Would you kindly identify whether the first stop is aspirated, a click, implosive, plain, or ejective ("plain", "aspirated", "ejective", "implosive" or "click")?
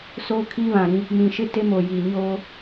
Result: aspirated